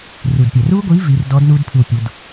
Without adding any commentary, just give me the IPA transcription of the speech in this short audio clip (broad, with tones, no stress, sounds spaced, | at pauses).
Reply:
r u˨˩ d pʲ ɛ˨˩ r u˦˥ ɡʷ i˨˥ v i˩˧ r d ɔ˨˥ d n u˦˥ d pʰ ɯ˨˩ w pʲ u˩˧ d